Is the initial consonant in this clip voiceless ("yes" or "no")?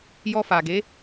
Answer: no